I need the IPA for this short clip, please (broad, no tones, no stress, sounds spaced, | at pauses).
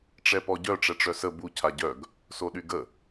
ʈ͡ʂ ɛ p ɔ ɟ œ ʈ͡ʂ ɛ ʈ͡ʂ œ s ə b u cʰ a ɟ œ ɡ | s o ɗ y ɡ ə